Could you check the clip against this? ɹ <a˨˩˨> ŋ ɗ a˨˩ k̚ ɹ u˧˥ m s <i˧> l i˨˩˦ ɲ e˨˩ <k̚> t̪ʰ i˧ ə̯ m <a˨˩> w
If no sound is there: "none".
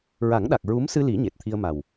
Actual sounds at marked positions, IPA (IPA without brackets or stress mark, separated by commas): a˨˩˦, ɨ˧, t̚, a˨˩